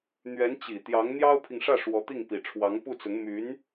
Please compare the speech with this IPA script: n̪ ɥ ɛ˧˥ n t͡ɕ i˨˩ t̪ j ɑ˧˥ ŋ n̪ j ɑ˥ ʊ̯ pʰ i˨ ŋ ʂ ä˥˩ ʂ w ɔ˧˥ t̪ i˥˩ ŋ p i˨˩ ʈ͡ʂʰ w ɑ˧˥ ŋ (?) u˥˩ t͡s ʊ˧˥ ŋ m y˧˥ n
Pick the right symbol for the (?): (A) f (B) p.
B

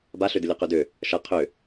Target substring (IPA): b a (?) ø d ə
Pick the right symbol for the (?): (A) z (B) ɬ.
B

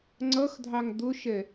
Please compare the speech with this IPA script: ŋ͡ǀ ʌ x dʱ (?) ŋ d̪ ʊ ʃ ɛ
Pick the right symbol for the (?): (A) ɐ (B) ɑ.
B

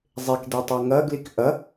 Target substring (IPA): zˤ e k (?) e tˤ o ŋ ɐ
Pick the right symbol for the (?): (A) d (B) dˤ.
A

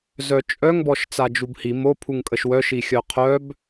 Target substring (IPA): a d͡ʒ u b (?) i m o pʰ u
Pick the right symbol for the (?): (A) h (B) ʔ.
A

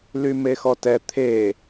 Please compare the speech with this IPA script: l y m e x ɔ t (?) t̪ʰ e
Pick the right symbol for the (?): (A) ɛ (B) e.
A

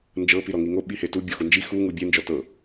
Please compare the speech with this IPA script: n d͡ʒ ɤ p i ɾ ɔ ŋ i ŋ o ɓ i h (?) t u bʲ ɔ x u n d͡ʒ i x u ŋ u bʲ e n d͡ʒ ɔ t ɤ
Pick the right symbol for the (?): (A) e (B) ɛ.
A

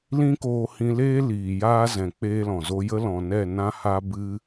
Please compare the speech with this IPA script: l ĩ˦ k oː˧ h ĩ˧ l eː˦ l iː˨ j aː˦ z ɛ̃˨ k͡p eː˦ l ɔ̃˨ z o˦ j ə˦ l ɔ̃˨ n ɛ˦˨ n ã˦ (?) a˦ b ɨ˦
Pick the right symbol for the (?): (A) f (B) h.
B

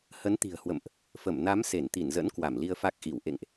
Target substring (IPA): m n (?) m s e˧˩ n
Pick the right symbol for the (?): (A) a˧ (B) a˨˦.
B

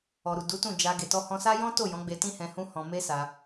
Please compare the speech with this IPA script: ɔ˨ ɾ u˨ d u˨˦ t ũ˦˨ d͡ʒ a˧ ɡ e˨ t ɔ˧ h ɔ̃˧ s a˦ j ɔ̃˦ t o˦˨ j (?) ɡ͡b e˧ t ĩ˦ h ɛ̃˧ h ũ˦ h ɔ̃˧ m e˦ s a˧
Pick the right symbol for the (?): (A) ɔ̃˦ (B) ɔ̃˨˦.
B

